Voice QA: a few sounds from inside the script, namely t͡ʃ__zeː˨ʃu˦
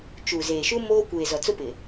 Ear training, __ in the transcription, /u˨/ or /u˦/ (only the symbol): u˨